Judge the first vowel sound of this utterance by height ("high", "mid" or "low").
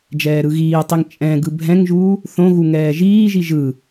mid